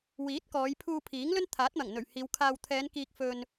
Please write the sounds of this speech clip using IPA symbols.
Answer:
w iː˨˥ t̚ k ɔː˨˧ j pʰ uː˧ pʰ iː˨˥ ŋ l ɵ˥ n t̪ʰ aː˨˥ t̚ m ɐ˨˩ ŋ n̪ ɵ˨˩ ɥ h iː˨˧ w kʰ aː˨ w t̪ʰ ɛː˨˧ n k iː˧ k̚ f ɵ˧ n

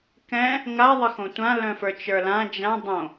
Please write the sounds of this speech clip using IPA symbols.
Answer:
k ɛ̃ | ŋ a ðˤ ə x õ tʷ ã l œ̃ f ə˞ t͡ʃ ə˞ l ã d͡ʒ ã dˤ õ

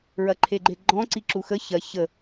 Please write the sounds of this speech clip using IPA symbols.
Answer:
ɹ ɐ ǃʰ e ɡ͡ǃ e ɡ͡ǃ ɔ̃ ǀ i ǁ u x ə ç ɐ ç ə

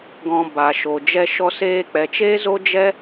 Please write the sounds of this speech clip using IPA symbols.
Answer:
ɡ ɔ̃˨ b a˨ ʃ o˨ d͡ʒ ɛ˧ ʃ ɔ˧ s eː˧ k͡p ɛ˨ t͡ʃ e˦ z o˦ d͡ʒ ɛ˦

